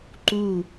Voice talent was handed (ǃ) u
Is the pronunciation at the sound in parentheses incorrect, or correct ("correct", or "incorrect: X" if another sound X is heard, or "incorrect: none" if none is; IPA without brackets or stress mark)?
correct